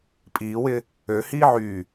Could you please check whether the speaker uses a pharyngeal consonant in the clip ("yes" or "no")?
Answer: yes